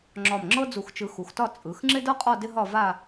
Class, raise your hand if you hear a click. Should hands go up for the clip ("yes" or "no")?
yes